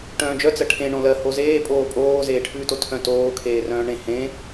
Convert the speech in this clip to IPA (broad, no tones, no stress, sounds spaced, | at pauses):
ʈ œ̃ː d͡ʒ œ t͡s ɜ ʈʰ ẽ ɳ õ l ɜ h o z eː pʼ oː pʼ oː z eː ʈʰ ʉː t o tʰ œ̃ t oː kʰ eː r œ̃ː ɳ ẽ h ẽ